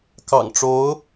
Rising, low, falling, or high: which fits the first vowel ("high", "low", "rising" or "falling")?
low